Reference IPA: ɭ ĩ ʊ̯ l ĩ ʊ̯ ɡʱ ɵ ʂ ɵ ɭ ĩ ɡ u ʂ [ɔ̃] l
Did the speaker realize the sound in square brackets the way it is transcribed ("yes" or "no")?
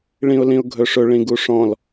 yes